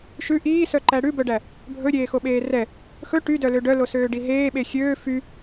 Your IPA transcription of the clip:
ʃʉ ʔiːsœǃæ ɽʉbœɖæ | bʱɵɾʲeːxoɓeː rɛ | xɵ ʈydœlø ɖœlosøːɖi ɦeːɓe xʲøː fy

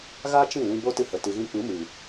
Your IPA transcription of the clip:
ɣa˦t͡ʃĩ˦˨lĩ˧ bo˦ tɨ˦hə˨tɨ˧ɣĩ˦ k͡pɨ˨˦mɨ˨

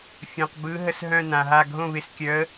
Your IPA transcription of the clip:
fʲœ̃˩qbɯ˨˦ ɦə˧˩sɦœ̃˧˩ nã˩ɦa˧˩ɡʱõ˥˩ βɪ˧˩s kʲœ˨˦ə̯

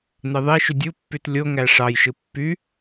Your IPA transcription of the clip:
n̪eðˤeʃy dʲupːyt lʲo ŋæʂɑjʃɯ pːy

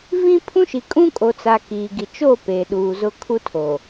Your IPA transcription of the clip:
vĩ˦pʰũ˦ʃi˨ kʼũ˦kʼo˨t͡sa˨ kiː˨ɡi˨ t͡ʃo˦˨ pe˨ɗuː˨zʊ˦ kʰu˦tʰo˨

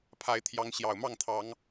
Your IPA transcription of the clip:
pʰa˨˦ɪ̯t̪ʰjɑ˨˦ŋ ɕjɑ˨˩ʊ̯mɑ˥˨ŋt̪ʰɑ˨˦ŋ

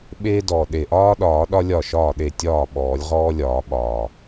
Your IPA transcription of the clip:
ɓeː˥dɔ˨˩ ɗe˨˩ʔɒː˥ɗɒː˨˩˦ ɗɒ˥lʲɒ˥˩ʃɒː˥˩ɗe˥˩ tʲɒː˥˩ ɓɔː˨˩˦lʲʁɔː˥lʲɒː˨˩˦ɓɒː˨˩

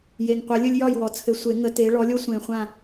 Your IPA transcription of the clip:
je˨˩ŋqʷə˨˩˦ lʲɵ˦lʲjɒ˥˨j wɔ˨˩t͡sʰɘ˨˩˦sʷe˨˩˦ ŋə˨˦te˨˦ ɭɔ˨˦lʲo˦ sʷẽ˨˩ χʷã˥˨

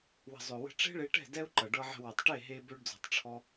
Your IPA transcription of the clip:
wə̤˨zˤø˨wə̤˧ ʈ͡ʂe̤˦ɭe˧ʈɛ̤˦˨ dɛ˦u̯ǃʌ˨ ɖɤ˧ʕə̤˧ wʌ˨tˤʈe˦˨ɦe˧ bø˦ɖd͡zɔ̤˧tˤʈ͡ʂʰɔ˦

